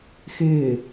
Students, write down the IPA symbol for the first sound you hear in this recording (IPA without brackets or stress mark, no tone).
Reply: x